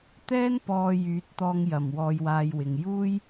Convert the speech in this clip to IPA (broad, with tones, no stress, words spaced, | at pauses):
t̪ɛː˥n pɔː˧jyː˨˥t̚t̪ɔː˧ŋ jɐ˨˩m wɔː˧jwaː˧j wɪ˨ŋ juː˥j